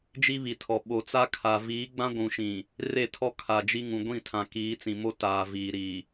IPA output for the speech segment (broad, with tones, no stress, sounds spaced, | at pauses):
d͡ʒ i˦ β i˨ tʰ ɔ˨ ɓ o˨ t͡s a˦ kʰ a˨ v iː˨˦ ɡ͡b ã˦ ɡʷ ũ˨ ʃ ĩ˨ | r e˦˨ tʰ ɔ˦ kʰ a˨ d͡ʒ i˦ ŋ ũ˨ ɡʷ ĩ˦˨ tʰ ã˨ k iː˨˦ t͡s ĩ˨ m o˦ t aː˨ v iː˨ ɾ i˨